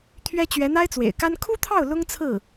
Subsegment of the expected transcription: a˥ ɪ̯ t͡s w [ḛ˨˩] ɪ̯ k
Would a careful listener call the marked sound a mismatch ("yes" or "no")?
no